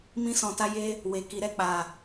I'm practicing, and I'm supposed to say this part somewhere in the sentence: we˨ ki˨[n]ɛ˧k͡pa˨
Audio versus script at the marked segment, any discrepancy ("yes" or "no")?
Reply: yes